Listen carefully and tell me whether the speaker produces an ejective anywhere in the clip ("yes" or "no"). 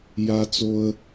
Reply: no